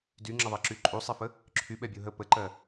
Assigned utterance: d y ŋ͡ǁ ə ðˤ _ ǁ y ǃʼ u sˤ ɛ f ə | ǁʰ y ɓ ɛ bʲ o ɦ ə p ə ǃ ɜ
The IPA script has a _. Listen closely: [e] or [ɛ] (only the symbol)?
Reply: e